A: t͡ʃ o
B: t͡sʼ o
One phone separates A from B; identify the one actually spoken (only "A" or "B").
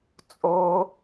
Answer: B